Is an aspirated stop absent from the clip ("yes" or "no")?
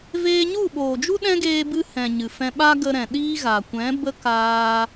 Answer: yes